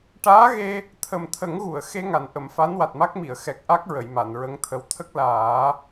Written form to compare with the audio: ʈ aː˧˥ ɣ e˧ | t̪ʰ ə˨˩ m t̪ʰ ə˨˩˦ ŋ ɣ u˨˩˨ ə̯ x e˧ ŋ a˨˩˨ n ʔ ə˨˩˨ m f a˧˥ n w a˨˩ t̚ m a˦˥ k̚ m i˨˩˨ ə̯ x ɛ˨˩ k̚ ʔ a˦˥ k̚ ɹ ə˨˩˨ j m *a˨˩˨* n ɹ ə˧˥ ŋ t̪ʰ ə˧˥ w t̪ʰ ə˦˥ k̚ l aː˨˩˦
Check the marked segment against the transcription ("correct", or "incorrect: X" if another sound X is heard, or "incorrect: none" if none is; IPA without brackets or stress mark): correct